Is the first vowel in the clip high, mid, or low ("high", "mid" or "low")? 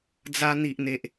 low